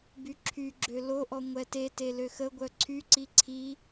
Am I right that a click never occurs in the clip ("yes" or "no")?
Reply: no